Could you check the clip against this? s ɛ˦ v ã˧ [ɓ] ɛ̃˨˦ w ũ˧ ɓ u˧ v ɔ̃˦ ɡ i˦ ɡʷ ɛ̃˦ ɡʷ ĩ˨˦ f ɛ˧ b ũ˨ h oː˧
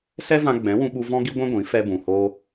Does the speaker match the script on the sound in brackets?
no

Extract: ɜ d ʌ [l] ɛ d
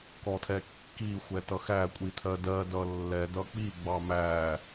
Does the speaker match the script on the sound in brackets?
no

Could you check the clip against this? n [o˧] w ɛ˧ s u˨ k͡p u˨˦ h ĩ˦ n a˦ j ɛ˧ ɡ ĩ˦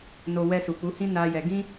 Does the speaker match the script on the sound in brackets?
yes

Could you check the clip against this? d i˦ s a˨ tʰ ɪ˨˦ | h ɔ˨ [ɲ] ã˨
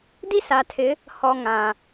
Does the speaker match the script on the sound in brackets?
no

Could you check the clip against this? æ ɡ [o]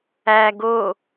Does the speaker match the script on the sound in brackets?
yes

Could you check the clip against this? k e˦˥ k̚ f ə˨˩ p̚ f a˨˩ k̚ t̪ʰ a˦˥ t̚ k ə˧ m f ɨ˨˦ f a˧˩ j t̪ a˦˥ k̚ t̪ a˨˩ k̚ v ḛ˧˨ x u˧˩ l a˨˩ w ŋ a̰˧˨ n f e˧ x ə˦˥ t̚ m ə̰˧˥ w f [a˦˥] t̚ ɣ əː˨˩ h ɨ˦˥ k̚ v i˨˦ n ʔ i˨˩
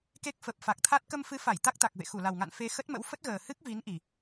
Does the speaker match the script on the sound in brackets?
no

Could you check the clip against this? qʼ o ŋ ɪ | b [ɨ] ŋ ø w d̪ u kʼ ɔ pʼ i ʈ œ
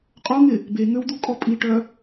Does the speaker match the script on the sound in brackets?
no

